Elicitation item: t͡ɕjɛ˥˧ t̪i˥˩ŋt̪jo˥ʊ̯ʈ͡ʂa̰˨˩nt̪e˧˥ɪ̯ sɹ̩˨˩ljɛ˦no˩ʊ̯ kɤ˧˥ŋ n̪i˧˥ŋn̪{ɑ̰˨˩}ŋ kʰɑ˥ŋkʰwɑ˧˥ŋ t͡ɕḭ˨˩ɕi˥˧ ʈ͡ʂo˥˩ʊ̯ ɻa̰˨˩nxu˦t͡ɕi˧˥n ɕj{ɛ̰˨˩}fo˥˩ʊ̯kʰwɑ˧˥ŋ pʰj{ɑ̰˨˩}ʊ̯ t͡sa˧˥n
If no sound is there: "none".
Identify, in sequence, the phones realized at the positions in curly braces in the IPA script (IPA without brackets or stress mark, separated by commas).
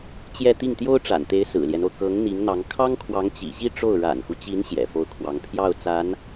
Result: ɑ˧˥, ɛ̰˨˩, ɑ˥˩